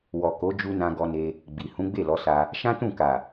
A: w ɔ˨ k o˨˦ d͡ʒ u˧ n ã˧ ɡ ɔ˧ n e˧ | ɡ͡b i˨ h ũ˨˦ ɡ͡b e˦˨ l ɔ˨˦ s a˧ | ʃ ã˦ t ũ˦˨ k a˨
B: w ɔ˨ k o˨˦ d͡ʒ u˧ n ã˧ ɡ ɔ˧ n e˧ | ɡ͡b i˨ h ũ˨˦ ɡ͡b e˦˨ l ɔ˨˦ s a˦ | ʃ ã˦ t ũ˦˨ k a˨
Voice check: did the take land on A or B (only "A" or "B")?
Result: A